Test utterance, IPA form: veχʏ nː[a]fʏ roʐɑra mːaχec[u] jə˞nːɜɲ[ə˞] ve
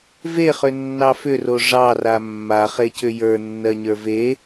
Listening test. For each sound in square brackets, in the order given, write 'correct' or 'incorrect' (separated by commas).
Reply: incorrect, incorrect, correct